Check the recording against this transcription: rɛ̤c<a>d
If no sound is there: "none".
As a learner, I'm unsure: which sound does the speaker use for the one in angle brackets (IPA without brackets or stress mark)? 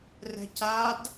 a